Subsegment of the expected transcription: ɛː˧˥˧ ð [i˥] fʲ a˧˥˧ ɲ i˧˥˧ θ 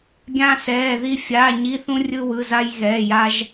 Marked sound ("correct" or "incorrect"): correct